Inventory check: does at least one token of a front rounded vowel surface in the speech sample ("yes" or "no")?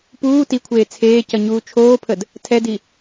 no